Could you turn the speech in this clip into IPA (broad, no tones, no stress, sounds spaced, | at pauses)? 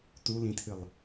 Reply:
t u l ĩ tʰ ɨ lˠ